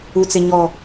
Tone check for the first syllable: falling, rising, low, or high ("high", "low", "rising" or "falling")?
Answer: low